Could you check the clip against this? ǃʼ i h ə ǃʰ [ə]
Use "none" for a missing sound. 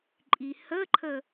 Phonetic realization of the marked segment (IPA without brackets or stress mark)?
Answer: ə